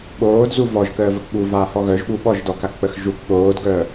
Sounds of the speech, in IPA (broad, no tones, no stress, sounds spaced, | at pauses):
ɓ oː d z u v ɔ ʒ k əː v ə k ɠ u v aː h ɔ ɣ œ ʒ ɓ u ɓ ɔ ʒ d ɔ k a k k͡p ə x ʒ u k ɠ oː d ɡ œː